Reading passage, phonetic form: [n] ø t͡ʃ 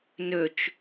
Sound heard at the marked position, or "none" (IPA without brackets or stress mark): n